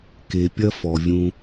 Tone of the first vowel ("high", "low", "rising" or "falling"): low